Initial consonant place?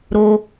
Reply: alveolar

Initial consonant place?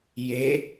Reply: palatal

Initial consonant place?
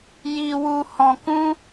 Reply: palatal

